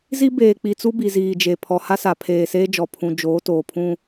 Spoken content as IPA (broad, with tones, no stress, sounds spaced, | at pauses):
z i˦ b eː˨ k͡p i˨ t͡s u˦ b i˨ z iː˨ d͡ʒ e˨ pʰ ɔ˨ h a˦ s a˨ pʰ eː˨ s eː˦ d͡ʒ ɔ˨ pʰ ũ˦ d͡ʒ oː˨˦ t oː˨ pʰ ũ˦